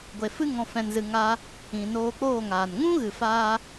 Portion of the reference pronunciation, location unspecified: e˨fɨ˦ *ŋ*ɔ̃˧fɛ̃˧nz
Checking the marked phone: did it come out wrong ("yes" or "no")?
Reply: no